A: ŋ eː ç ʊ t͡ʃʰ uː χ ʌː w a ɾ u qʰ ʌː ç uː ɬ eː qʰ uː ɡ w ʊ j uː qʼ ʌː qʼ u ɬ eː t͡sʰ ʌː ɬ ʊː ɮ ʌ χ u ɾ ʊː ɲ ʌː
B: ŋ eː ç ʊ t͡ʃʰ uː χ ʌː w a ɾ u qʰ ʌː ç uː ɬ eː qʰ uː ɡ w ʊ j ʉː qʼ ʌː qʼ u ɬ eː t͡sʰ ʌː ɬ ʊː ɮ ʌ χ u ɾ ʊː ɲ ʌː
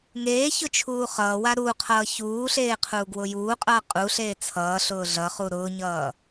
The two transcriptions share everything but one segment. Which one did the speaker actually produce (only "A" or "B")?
A